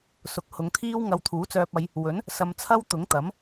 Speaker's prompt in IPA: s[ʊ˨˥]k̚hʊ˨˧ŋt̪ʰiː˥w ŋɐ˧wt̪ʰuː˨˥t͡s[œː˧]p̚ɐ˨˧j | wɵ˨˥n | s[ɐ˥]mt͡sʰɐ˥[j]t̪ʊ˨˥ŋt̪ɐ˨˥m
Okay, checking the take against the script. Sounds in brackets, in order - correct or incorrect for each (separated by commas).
correct, correct, incorrect, incorrect